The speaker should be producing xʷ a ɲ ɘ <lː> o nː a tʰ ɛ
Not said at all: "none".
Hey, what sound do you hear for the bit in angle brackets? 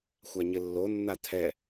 lː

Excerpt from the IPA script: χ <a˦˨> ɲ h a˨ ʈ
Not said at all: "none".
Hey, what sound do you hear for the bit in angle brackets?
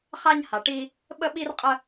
a˦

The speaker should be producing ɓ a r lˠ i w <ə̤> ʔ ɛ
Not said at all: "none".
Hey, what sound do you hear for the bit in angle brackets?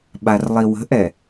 ə̤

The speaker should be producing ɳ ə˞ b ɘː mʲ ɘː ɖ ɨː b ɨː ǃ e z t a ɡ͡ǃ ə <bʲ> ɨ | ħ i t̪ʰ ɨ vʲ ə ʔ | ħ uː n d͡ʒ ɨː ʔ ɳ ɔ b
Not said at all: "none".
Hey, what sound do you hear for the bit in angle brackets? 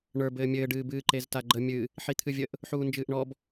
mʲ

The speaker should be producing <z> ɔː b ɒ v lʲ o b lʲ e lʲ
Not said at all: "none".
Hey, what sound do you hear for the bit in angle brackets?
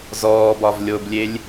z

